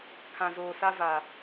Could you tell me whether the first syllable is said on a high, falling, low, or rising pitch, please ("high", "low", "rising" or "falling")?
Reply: low